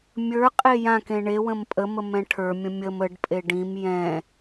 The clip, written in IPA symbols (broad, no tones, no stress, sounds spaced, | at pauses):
mʲ ə˞ qʼ e j ã k ẽ ɳ e w ə̃ m pʼ ə m ə m ɛ̃ ʈʰ ə˞ mʲ ə̃ mʲ ə m ə ɖ pʼ e ɖ ĩ m j ɛ̃